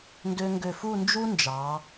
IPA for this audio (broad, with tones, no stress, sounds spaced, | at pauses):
n d ø˧ ŋ ɡ ø˧˩ f u˥˧ n d͡ʒ u˥ n d͡ʒ ɑ˩˧